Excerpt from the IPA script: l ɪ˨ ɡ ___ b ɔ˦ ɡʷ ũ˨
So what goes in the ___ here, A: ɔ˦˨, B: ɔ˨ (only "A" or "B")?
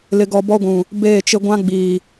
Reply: B